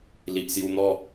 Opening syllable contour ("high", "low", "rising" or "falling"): low